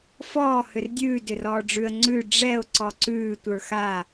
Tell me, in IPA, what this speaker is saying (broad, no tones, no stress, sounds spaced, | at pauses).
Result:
f ɔː h ʏ r dʲ ʉː d ʏ r ɔː ɖ͡ʐ ʉ ə̯ ŋ͡ǀ ʉ ɖ͡ʐ ɛ ʊ̯ ǀ ɔ ǀ ʉː tʷ ə˞ x a